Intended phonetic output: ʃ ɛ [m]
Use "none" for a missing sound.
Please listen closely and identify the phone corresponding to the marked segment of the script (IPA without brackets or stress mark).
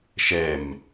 m